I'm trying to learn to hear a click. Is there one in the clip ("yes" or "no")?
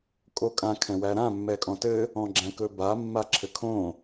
yes